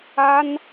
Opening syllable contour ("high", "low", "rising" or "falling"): high